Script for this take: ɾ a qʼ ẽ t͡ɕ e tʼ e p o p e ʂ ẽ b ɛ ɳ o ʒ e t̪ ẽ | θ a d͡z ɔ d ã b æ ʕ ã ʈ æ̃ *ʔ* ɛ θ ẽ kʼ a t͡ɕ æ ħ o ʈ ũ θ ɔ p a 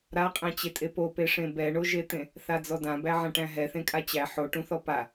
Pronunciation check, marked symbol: incorrect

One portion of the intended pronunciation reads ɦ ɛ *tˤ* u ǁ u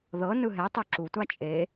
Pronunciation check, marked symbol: correct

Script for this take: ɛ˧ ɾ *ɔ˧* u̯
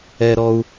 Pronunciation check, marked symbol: correct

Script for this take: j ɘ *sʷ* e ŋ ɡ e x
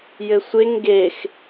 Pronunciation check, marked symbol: correct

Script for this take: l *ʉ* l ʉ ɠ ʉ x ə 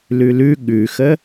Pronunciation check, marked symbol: correct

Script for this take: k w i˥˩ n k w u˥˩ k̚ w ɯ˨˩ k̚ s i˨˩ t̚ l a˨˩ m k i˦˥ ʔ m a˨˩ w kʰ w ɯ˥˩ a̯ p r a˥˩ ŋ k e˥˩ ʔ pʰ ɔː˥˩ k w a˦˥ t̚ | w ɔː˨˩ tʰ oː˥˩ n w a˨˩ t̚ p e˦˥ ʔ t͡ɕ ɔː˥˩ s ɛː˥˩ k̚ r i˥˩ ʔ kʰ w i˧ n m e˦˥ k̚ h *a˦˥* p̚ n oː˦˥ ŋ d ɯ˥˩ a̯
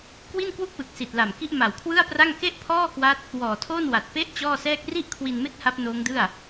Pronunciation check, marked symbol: correct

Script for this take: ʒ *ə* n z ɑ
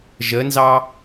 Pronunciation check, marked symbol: correct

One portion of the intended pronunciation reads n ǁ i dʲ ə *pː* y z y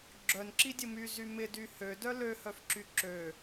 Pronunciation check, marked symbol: incorrect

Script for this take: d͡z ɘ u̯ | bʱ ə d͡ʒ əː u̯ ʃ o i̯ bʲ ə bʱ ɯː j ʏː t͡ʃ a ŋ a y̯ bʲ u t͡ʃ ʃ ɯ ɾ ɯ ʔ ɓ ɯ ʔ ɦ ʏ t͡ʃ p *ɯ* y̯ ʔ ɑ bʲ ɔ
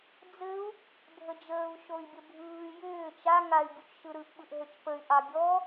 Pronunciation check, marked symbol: incorrect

